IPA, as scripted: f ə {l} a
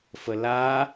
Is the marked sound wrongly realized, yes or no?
no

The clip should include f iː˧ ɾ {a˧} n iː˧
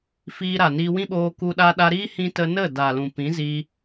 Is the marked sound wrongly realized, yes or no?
yes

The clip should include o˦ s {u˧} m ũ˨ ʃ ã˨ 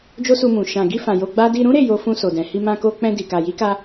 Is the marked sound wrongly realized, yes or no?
no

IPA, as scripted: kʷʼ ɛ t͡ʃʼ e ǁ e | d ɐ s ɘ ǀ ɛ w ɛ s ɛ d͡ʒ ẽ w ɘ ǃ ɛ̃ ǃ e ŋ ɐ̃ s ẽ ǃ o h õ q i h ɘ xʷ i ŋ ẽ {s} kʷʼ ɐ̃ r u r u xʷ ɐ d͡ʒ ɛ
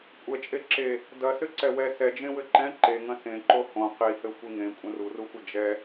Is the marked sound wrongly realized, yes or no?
yes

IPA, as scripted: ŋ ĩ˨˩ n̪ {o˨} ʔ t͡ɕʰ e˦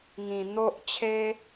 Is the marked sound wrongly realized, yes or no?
yes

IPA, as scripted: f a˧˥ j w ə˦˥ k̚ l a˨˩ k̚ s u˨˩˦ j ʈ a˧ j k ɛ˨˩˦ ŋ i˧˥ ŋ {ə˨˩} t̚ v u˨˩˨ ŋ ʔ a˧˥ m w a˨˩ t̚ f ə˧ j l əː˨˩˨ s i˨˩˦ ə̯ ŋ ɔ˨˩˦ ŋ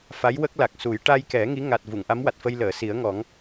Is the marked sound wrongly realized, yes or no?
yes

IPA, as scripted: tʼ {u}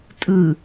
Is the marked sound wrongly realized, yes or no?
yes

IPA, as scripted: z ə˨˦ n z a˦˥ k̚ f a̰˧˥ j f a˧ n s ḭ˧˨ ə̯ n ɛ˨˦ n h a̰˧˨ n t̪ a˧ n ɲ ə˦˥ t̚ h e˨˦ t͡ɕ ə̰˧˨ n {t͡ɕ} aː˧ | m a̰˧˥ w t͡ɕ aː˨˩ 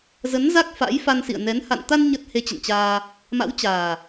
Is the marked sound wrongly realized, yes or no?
no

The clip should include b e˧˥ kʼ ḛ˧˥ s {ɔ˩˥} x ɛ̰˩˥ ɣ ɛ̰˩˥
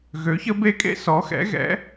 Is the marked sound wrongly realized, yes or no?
no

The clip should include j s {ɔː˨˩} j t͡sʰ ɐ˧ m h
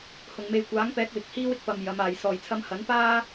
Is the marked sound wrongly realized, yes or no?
no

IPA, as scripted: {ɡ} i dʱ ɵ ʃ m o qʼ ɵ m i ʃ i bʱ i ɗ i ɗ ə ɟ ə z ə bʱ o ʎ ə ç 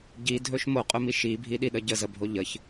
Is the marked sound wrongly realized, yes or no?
yes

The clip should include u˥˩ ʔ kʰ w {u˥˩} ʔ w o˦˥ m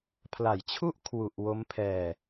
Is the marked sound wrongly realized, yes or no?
yes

